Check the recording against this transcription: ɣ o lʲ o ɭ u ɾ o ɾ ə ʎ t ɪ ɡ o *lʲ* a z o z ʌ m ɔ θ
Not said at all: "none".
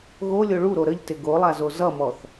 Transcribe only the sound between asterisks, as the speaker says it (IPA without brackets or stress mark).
lˠ